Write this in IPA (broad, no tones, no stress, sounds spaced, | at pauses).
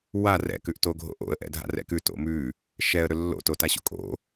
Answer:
w a r ɛ̰ k ʉ ʔ t o ɡʱ o̰ ʔ o̰ ə̯ ʔ ɛ̰ dʱ a̰ r ɛ̰ k ʉ t o̰ m ʉ | ʃ ɛ ə̯ ɾ ɵ lː o̰ t o t a ɕ o̰ kʼ o̰